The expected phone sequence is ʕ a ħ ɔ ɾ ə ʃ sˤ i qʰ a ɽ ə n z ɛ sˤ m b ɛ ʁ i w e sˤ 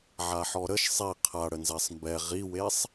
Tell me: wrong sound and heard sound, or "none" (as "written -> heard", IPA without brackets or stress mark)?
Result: none